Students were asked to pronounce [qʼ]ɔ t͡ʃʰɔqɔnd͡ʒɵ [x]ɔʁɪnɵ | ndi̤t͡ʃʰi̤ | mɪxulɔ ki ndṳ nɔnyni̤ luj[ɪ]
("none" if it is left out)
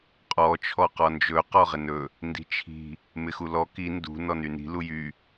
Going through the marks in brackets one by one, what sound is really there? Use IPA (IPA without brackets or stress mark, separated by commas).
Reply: qʼ, q, y